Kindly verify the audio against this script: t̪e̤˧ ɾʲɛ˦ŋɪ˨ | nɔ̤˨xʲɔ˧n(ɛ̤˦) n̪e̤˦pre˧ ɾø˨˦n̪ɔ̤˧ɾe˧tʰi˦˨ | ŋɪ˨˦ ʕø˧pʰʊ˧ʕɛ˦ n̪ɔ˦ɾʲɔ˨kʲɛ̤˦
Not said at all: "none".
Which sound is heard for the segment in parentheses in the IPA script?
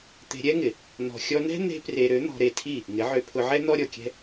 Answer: ɛ̤˦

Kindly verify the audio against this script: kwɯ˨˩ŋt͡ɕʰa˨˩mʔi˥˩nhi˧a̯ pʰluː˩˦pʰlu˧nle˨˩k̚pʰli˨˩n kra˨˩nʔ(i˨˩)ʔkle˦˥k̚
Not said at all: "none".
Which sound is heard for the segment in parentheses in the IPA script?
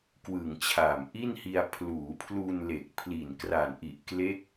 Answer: i˨˩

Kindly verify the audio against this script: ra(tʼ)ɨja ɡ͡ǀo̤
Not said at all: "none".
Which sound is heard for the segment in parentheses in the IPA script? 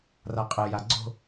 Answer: qʼ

